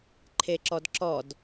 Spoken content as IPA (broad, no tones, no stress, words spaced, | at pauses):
ǃʰeǁɔdǁɔd